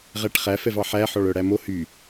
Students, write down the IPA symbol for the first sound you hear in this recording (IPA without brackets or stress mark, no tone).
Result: ʁ